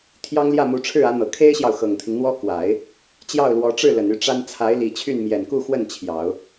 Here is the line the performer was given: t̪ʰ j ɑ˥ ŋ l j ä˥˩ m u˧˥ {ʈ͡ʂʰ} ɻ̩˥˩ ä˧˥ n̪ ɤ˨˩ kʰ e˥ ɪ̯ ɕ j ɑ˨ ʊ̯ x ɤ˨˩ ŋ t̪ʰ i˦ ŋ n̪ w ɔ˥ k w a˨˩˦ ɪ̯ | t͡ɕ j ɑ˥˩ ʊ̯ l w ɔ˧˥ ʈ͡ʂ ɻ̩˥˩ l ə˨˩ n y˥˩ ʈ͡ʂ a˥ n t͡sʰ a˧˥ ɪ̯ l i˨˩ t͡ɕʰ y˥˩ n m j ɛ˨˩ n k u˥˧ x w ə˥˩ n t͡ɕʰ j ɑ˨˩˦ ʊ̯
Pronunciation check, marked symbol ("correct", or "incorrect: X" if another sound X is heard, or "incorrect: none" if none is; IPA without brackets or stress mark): correct